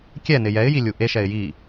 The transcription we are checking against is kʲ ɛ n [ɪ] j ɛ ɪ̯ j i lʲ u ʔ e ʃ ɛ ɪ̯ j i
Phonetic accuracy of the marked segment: correct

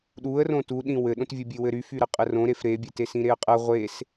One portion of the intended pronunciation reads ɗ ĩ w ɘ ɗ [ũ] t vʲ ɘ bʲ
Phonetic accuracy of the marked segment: incorrect: õ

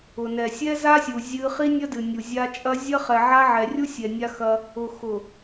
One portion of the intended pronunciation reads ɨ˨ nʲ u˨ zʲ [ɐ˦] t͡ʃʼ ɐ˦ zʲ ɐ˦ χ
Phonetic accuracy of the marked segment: incorrect: a˦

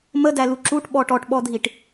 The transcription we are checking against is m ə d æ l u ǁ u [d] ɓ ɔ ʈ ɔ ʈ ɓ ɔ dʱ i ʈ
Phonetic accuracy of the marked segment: incorrect: ʈ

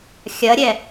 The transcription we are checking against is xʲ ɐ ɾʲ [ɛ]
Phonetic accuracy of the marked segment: correct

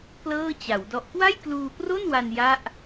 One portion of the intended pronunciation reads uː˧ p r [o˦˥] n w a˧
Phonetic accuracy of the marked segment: incorrect: o˥˩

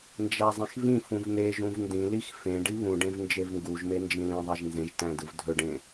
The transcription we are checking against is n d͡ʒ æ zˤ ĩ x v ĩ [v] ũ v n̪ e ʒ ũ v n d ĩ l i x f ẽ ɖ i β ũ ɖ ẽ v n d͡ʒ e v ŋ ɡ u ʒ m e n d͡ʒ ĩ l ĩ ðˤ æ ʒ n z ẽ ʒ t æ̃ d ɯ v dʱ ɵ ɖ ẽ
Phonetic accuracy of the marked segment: incorrect: f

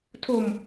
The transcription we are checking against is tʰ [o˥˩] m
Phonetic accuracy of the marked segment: incorrect: o˧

